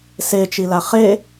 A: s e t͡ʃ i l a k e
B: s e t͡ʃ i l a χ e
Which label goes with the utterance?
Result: B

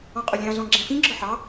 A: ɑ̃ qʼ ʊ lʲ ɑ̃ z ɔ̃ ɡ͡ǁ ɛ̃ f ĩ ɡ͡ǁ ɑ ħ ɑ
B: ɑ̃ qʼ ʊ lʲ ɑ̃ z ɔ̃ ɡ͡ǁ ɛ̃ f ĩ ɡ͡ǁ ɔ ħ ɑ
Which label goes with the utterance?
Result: B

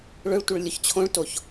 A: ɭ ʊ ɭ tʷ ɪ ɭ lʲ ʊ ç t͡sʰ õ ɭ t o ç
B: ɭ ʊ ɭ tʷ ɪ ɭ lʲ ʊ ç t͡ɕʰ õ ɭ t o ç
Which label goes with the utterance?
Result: B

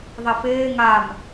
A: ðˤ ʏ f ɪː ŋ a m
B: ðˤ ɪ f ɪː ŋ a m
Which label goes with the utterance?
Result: B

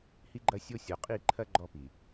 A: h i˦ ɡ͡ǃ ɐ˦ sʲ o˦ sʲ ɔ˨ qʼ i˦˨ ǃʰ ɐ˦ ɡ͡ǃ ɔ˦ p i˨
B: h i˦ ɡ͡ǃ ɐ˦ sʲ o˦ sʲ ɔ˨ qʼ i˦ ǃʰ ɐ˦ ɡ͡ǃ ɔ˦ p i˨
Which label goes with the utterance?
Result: A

